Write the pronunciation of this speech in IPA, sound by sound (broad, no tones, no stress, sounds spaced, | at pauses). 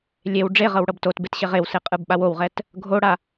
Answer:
lʲ e w ɖ͡ʐ e ʁ ɤ w ɽ ɤ b t o t b e t ɕ e ʁ e w s e qʼ ɯ b ɓ a w o w ʁ ɛ t | ɡʱ o ɽ a